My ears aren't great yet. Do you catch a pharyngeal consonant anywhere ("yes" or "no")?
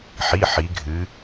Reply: yes